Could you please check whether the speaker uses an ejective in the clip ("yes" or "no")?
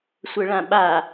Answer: no